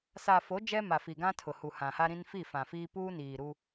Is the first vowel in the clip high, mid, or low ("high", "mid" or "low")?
low